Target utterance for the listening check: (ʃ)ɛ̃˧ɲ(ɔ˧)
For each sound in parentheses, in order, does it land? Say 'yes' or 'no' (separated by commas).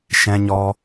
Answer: yes, yes